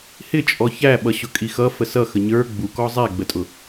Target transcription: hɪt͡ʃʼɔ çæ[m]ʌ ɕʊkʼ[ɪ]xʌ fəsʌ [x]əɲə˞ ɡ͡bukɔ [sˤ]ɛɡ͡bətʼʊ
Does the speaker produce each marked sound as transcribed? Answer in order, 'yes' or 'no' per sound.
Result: no, no, yes, no

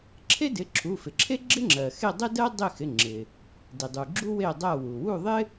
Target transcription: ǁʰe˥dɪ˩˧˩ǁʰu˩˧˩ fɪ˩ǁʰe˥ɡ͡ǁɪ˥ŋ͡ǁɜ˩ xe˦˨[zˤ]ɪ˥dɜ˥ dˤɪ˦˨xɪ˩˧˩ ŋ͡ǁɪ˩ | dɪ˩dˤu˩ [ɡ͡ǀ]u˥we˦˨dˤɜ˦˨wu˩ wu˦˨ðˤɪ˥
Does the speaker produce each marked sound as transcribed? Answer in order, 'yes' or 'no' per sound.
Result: no, no

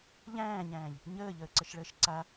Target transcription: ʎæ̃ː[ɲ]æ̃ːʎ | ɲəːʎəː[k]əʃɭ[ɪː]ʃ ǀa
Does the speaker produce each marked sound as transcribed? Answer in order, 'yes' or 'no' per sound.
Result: yes, no, no

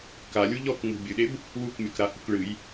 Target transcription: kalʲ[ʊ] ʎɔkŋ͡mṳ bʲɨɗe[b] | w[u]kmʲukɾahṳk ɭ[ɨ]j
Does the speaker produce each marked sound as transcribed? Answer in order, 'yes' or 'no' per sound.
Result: no, yes, yes, yes

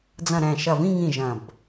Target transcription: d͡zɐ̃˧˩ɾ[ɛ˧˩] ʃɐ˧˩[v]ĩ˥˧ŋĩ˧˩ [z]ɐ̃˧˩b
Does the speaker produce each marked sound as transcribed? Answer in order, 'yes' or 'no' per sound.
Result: no, yes, no

